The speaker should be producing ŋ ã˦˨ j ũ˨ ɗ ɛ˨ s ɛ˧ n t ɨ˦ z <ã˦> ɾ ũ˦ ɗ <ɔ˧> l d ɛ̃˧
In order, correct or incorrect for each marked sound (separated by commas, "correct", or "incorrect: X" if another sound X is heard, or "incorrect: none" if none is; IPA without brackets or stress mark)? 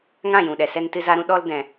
incorrect: a˦, incorrect: ɔ˦